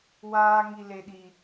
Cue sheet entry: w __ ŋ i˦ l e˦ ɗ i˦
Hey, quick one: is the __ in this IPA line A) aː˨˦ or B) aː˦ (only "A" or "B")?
B